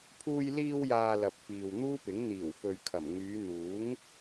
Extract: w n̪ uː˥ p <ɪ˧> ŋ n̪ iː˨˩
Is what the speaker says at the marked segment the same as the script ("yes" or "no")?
no